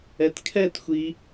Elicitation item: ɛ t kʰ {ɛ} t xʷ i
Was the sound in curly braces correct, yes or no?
yes